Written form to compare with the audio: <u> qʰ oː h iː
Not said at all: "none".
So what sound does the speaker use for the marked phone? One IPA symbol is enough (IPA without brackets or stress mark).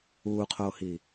uː